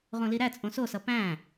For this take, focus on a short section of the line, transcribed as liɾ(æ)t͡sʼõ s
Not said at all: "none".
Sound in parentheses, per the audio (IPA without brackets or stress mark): æ